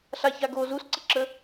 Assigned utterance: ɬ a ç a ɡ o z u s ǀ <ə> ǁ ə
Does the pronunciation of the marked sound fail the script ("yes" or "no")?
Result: no